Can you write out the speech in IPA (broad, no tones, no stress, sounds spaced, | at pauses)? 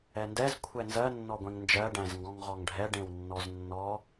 ɛ n d ɛ z kʷʰ ɛ n z ɜ nː ɔ ɡʷ ẽ ŋ n d͡ʒ ɜ ɖ æ̃ z ŋ ɡ ɔ̃ ŋ ʁ ɔ ŋ ɖʱ ɛ ɖ ẽ w nː ɔ z nː ɔ